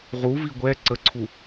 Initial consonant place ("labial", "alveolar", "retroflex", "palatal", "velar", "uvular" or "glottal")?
uvular